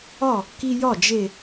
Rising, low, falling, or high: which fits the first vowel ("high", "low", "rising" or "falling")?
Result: falling